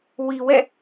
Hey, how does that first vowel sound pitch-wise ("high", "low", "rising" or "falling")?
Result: low